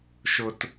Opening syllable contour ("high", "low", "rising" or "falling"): high